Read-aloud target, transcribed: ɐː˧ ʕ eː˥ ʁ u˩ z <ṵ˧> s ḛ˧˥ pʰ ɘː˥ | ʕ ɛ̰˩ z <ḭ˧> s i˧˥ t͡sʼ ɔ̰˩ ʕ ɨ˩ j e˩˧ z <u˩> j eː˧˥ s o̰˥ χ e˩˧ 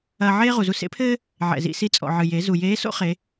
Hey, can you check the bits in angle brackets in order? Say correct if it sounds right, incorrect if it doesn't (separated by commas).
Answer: incorrect, correct, correct